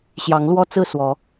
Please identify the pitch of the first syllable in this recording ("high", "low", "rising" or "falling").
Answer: rising